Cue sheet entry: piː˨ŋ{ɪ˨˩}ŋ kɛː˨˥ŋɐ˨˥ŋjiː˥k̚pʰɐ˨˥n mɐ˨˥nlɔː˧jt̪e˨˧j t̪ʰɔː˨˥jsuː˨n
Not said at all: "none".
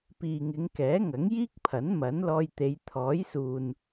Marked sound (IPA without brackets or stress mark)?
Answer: ɪ˨˧